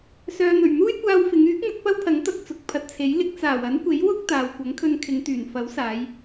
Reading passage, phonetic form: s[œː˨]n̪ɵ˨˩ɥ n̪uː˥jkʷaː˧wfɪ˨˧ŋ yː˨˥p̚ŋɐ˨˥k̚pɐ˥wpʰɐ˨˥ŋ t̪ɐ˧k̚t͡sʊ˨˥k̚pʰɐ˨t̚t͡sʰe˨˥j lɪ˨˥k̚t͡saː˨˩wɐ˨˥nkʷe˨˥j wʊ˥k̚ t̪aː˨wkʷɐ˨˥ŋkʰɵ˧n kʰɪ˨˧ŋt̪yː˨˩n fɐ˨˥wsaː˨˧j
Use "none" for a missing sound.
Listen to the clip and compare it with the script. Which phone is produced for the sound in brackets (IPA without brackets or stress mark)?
œː˨